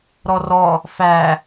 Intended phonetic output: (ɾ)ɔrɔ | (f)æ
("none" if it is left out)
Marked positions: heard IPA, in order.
ɾ, f

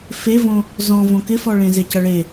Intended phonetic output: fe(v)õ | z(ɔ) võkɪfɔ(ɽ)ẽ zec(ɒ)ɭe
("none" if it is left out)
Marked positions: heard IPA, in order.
v, ɔ̃, ɭ, ʌ

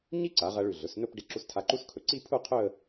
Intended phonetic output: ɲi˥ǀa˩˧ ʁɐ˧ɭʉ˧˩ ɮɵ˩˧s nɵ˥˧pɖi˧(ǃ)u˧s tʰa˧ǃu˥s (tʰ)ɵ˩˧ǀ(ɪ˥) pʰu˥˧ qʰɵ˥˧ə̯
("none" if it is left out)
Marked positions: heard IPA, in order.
ǁ, kʰ, i˥

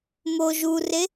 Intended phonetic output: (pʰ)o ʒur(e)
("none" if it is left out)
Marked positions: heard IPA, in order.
m, e

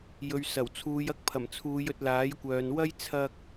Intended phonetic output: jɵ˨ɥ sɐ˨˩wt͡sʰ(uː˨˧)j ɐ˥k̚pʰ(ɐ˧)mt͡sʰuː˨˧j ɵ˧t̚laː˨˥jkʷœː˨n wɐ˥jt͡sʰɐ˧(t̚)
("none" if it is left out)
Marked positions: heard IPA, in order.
uː˨˧, ɐ˨˩, k̚

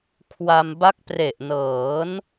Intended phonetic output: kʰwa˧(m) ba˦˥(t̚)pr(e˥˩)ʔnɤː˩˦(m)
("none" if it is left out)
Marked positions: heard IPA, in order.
m, k̚, e˨˩, n

